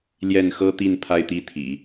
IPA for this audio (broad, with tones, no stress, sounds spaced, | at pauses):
l j ɛ˥˩ n x ɤ˥ t̪ i˥˧ n pʰ a˥˧ ɪ̯ t̪ i˥˩ t̪ʰ ḭ˨˩˦